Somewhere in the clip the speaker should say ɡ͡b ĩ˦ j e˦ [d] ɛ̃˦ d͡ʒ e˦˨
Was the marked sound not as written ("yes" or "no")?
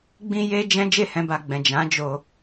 yes